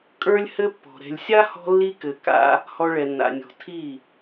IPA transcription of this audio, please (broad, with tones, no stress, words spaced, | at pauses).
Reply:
kʼə˞˦lʲhɘ˦pːɔ̤˨ ɾɛ̤˨lʲsʲa˦hɔ̤˧lːi˧ kɘ˨ ka̰˧ | hɔ˧ɭɛ˨nːa̰˨nʲɔ̤˨ tʰi˦˨